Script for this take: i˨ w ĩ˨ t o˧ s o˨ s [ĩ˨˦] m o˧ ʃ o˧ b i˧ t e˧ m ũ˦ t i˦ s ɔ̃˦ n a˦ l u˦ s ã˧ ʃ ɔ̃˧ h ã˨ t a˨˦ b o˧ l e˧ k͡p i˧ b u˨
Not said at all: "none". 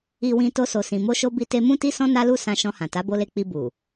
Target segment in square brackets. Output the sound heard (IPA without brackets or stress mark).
ĩ˨